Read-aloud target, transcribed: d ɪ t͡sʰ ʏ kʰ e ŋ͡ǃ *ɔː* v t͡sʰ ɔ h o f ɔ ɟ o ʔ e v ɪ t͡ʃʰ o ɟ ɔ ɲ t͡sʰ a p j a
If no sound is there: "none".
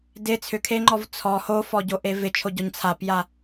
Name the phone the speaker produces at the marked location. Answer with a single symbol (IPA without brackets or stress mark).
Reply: ɔ